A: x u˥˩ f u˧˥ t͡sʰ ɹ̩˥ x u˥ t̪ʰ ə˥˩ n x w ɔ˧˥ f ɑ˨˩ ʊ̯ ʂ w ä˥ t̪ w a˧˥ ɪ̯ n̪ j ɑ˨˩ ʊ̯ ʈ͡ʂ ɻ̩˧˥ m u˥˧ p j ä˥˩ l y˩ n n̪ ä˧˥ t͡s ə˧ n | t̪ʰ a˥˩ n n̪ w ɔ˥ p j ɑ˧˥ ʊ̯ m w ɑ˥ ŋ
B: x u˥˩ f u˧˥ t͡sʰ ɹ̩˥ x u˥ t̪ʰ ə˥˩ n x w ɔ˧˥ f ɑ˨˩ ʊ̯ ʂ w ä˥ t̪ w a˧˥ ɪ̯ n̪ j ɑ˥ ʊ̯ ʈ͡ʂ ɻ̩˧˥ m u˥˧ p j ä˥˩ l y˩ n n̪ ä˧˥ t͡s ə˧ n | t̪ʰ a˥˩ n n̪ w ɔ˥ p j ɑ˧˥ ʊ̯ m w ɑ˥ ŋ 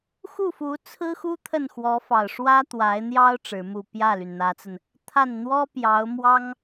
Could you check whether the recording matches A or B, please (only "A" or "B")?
B